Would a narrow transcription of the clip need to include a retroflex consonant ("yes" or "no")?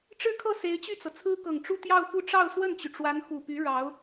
yes